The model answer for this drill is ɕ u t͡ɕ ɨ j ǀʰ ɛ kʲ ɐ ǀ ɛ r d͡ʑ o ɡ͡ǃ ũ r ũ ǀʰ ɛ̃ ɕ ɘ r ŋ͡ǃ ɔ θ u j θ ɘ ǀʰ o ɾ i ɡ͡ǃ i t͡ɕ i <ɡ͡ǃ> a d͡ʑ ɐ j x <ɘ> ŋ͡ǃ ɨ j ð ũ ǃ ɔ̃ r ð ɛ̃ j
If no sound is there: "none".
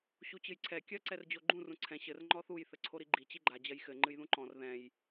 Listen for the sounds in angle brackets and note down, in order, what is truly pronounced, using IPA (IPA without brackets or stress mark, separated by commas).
ɡ͡ǃ, ɘ